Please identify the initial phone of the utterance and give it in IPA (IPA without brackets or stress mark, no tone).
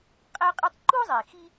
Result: qʼ